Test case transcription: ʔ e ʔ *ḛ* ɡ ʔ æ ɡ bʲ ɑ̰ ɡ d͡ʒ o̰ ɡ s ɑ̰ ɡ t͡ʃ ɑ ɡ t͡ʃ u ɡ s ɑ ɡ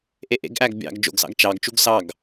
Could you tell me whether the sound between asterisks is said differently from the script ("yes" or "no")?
no